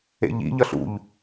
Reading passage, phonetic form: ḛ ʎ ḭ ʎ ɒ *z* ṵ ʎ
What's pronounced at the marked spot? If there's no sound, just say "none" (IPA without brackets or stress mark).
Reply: ɬ